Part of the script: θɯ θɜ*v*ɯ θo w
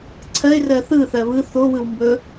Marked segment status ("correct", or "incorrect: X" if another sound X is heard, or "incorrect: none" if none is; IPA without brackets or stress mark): incorrect: β